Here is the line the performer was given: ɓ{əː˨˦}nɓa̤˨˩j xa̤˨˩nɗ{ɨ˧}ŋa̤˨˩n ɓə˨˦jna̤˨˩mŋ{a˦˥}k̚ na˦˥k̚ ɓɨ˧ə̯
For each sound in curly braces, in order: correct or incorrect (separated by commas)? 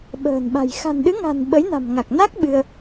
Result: incorrect, incorrect, incorrect